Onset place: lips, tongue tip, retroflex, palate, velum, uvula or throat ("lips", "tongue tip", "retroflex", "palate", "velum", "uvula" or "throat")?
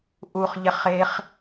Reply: throat